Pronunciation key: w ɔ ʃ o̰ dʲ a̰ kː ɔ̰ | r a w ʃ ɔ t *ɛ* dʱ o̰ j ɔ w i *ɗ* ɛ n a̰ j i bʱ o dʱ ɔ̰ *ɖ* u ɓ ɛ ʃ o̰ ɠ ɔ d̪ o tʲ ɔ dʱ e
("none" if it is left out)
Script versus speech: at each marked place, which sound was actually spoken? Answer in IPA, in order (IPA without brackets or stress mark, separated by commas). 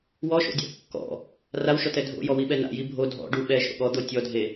ɛ, ɓ, ɖ